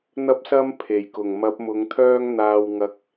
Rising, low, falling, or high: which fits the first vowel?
high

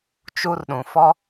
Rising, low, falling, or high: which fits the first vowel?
high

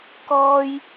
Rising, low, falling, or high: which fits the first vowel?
high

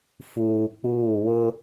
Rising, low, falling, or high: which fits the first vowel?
low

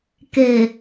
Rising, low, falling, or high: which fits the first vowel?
low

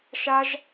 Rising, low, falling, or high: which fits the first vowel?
high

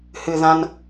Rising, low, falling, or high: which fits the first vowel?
low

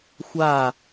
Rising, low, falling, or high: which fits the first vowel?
falling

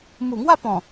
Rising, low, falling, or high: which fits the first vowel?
low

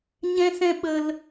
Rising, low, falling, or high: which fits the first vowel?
high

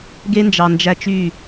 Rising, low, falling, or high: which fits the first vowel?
high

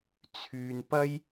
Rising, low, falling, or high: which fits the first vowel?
low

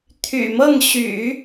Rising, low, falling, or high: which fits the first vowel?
low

